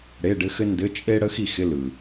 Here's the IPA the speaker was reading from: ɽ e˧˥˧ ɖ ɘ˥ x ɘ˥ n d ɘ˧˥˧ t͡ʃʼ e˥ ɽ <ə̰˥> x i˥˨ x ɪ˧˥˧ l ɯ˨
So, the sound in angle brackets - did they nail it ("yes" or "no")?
no